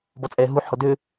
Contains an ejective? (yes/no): yes